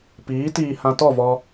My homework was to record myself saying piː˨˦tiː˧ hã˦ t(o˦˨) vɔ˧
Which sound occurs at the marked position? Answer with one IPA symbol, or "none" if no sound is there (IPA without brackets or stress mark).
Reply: ɔ˦˨